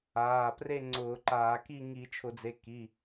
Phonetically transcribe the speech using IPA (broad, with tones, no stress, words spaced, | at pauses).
aː˩˧˩ pre˥˨ŋ͡ǀʊː˧˩˧ǃaː˧˩˧ ki˥˨ ŋi˧˩˧t͡ʃʰʊ˧˩˧d͡ze˩˧˩ ki˩˧˩